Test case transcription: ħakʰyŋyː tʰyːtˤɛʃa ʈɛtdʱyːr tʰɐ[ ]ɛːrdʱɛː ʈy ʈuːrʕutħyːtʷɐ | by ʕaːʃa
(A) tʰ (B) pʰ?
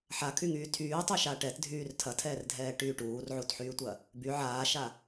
A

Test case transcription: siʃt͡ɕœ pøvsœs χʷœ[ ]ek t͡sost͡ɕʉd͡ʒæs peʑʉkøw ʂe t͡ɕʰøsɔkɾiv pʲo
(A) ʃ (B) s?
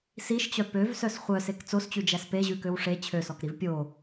B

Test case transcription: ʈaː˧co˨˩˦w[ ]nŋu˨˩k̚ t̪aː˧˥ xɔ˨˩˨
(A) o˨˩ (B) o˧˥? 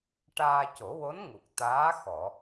B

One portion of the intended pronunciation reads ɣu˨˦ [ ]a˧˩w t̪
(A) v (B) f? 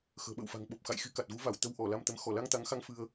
A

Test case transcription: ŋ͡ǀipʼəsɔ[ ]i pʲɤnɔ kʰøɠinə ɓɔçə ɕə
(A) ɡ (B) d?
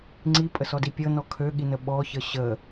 B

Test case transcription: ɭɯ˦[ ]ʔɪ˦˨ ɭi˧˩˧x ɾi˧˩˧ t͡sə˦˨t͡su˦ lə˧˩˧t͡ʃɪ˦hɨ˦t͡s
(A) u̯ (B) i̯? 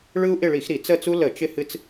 A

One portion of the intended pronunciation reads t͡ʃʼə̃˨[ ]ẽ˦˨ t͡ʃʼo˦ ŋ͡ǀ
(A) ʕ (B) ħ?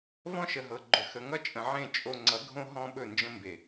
A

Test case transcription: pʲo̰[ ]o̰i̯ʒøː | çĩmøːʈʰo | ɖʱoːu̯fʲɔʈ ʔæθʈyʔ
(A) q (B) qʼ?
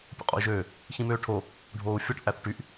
B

